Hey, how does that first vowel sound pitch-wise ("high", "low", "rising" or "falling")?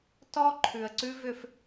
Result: high